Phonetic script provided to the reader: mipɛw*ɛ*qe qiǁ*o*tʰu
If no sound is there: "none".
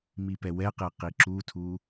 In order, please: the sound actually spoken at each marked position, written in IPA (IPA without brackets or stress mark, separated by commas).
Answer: ɛ, u